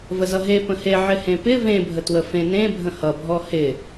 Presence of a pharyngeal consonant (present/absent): present